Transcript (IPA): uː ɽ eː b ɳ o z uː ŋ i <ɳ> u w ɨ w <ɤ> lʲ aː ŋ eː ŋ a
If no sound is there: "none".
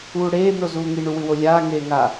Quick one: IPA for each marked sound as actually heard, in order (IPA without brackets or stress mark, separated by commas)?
ɳ, o